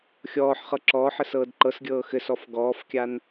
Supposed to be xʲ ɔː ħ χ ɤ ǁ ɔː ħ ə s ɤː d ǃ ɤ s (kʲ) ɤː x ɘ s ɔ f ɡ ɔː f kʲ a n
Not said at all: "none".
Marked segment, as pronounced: ɡʲ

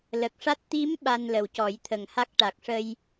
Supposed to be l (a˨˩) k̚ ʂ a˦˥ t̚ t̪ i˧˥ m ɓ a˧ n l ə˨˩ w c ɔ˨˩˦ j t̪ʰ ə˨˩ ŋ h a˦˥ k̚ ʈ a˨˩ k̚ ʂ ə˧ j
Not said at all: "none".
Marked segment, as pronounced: ə˨˩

